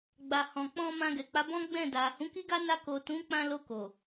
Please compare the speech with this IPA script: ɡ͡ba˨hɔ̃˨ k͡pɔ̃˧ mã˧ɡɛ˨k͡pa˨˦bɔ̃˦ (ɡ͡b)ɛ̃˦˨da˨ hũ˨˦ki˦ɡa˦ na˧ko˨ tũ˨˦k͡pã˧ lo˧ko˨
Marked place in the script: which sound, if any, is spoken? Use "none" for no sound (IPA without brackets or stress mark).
ɡ͡b